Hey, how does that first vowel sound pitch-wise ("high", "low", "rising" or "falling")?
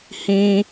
high